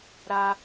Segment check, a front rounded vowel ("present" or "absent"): absent